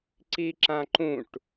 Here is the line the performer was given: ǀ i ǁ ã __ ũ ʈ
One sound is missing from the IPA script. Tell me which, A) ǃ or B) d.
A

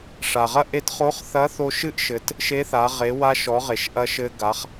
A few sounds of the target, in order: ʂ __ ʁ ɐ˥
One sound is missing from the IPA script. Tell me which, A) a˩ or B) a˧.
A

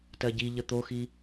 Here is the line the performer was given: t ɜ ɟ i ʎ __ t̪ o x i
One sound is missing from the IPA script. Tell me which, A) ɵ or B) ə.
B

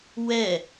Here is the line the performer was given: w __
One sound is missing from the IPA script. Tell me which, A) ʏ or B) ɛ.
B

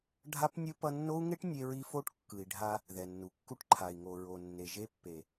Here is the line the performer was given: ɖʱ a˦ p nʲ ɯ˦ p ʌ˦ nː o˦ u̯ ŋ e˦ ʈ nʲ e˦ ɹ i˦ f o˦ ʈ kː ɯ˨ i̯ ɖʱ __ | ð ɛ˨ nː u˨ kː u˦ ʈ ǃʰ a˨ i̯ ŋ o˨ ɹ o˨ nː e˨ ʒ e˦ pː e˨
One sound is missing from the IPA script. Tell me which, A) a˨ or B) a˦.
B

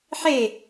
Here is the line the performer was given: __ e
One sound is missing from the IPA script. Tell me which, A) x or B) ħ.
B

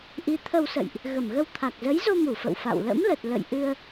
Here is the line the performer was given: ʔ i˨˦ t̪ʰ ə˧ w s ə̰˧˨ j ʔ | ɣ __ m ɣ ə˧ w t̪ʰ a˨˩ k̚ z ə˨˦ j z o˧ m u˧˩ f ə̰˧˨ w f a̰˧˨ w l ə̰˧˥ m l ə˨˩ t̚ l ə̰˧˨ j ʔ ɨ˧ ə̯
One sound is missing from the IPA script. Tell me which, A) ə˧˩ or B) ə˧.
A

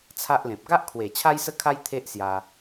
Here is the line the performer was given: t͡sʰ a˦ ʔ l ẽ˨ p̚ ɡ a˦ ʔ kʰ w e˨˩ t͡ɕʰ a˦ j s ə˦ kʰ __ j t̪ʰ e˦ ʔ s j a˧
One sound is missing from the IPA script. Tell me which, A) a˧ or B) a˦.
B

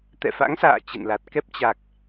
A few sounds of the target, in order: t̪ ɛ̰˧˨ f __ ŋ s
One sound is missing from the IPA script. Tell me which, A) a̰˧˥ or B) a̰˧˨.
A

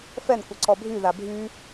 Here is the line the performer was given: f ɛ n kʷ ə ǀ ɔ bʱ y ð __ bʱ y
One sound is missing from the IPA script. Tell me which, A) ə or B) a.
B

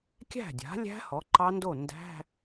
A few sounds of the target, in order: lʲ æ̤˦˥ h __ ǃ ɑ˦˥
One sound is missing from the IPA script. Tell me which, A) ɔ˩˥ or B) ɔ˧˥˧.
A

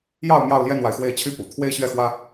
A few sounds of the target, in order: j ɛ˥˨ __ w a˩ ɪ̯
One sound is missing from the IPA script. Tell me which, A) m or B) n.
B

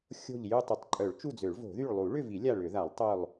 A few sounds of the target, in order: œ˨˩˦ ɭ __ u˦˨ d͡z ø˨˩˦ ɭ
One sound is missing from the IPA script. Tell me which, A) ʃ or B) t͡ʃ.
B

